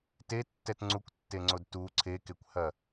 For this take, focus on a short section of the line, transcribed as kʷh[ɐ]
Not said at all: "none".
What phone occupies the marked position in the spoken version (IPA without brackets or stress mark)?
ɐ